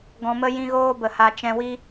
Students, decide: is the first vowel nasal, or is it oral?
nasal